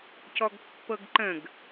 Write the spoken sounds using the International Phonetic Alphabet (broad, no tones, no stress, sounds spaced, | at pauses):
c ɔ ɡ pː ɤ ɡ ǃ ə̃ ɡ